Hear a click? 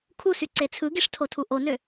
yes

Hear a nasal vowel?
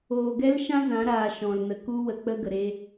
yes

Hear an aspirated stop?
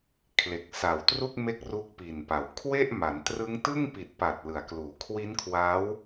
yes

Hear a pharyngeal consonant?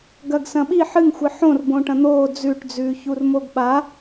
yes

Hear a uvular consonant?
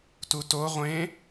yes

